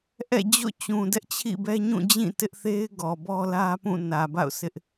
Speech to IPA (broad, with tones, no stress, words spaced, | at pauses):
ʔɛ̰˦˨d͡ʑo̰˦˨t͡ɕũ˨ dɛ˦ʔt͡ɕʰḭ˦˨bɛ˦ɲũ˦˨ d͡ʑĩ˦˨tɪ˦ʔθe˦ɪ̯ɡɔ˨ bɔ˦lä˦pũ˦˨ nä˨ba̰˦˨ʊ̯sʰɪ˦ʔ